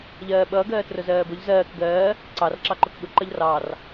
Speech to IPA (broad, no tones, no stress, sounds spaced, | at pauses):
ʎ ɜː ɓ ʌː ɡ ɜː t r ʊ z ɜː b ʊ ʎ z ɜː k ɡ ɜː | ǀ ɑ r ǁ ɑ ǃ ʊ k ɠ ʊ ǃ ʌ ʎ r ɑ r